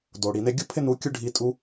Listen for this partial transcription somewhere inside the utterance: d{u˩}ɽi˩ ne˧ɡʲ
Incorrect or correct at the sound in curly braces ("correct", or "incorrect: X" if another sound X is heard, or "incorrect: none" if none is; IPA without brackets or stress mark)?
incorrect: o˩